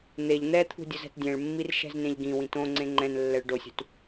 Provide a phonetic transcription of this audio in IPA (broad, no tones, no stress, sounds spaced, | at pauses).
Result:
n̪ e ʎ n̪ ɛ t̪ʰ ṳ dʲ ʊ z ɛ̤ t dʲ ɛ̃ ɭ mː i r ʃ ɛ̤ z n ẽ ʎ ɡ ĩ w ĩ t õ ŋ͡ǀ ẽ ŋ͡ǃ ɛ̃ n lː ɛ ɭ ɖ o sʲ ṳ t